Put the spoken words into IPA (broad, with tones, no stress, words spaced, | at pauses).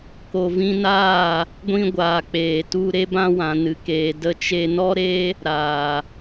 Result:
ko˨vĩ˧naː˦˨ | ɡʷĩ˧ɡʷaː˨k͡peː˨ tu˧ ɾe˧bã˧ wã˨nɨ˨keː˨ də˧t͡ʃe˧ nɔ˦ɾeː˦ | ɾaː˨